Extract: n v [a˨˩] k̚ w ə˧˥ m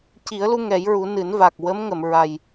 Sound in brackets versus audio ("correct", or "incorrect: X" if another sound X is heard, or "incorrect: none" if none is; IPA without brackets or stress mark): correct